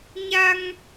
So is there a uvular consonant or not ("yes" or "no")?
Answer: no